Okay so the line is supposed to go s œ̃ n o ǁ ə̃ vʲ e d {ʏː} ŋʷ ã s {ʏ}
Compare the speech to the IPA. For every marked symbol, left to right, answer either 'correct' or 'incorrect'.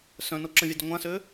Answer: incorrect, incorrect

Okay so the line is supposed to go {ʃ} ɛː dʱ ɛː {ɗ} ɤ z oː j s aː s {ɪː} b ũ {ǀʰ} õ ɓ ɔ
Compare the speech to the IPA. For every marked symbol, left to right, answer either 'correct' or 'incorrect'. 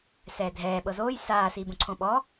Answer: incorrect, incorrect, incorrect, correct

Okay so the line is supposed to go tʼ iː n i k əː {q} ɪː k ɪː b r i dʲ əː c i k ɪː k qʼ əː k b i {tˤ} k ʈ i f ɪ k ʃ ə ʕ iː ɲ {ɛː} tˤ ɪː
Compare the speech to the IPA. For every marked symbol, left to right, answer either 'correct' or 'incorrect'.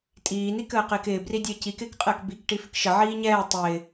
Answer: correct, incorrect, correct

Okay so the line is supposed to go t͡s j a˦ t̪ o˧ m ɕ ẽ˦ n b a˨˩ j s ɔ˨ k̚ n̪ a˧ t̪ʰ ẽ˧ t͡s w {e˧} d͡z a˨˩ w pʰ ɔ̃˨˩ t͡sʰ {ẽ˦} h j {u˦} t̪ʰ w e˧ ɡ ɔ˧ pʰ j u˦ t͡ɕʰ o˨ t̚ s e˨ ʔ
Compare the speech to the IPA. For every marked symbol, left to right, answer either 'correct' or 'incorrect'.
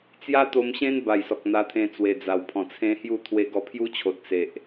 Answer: incorrect, correct, incorrect

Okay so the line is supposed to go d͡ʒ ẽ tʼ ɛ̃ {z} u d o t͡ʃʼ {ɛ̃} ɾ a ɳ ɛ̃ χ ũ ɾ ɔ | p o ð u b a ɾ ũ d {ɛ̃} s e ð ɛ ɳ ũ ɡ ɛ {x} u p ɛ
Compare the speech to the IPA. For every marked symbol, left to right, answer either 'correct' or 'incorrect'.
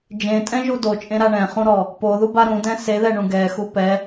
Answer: incorrect, incorrect, correct, correct

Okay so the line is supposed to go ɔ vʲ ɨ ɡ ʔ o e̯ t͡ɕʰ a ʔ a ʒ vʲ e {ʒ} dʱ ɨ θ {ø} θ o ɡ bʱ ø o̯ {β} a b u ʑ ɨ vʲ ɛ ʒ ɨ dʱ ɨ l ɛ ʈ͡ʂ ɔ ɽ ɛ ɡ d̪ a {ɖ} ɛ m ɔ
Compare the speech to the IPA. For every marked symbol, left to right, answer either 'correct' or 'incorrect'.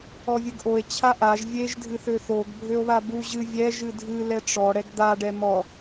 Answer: correct, correct, correct, correct

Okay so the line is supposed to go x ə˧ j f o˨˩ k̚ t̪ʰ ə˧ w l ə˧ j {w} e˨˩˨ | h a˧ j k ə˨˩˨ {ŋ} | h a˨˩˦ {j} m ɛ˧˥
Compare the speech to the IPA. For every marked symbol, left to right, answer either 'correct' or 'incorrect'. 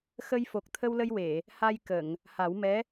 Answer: correct, correct, incorrect

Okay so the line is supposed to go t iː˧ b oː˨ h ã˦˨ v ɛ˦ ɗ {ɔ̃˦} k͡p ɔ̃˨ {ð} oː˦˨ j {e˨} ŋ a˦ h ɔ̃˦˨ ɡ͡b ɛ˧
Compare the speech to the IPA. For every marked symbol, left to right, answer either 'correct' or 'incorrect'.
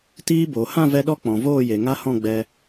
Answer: incorrect, incorrect, correct

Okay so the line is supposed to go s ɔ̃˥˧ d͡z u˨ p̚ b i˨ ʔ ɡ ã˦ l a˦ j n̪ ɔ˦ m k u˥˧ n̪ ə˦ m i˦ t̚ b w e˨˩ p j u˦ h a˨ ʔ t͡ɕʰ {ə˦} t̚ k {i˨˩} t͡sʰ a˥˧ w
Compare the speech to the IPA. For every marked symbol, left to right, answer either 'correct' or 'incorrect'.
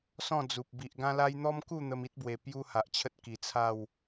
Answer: correct, correct

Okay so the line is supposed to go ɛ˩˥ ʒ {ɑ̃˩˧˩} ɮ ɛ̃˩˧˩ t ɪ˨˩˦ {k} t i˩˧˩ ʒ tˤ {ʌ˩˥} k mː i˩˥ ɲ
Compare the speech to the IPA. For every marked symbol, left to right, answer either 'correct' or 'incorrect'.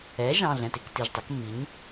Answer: correct, correct, correct

